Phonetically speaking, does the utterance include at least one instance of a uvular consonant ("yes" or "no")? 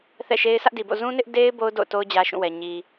no